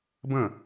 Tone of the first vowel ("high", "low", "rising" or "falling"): falling